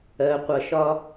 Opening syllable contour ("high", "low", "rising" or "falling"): low